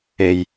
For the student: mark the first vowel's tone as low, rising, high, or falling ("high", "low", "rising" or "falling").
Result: low